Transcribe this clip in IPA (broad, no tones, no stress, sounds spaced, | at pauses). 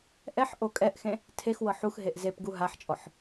ʔ ɛ ħ ʔ o kʼ ɛ ʔ x ẽ | tʰ e x w ɤ ħ u x ɦ e ʔ z e p ɡ u ɦ a ħ t͡ʃʼ ɔ ħ